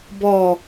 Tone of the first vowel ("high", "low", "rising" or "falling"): falling